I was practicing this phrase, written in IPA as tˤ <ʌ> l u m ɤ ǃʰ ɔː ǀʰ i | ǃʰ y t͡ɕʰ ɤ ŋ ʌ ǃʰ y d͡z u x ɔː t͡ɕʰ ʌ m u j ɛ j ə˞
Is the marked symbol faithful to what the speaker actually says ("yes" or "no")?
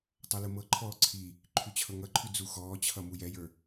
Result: yes